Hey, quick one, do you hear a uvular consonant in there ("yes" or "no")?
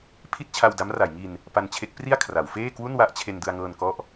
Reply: no